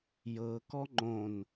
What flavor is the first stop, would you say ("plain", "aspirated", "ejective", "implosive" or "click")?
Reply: plain